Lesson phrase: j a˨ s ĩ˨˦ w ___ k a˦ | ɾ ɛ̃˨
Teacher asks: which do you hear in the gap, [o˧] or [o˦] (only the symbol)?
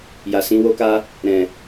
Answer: o˦